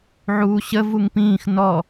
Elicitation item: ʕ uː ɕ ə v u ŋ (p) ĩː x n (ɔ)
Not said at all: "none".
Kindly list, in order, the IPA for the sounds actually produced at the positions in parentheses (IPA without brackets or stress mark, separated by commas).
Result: p, ɔ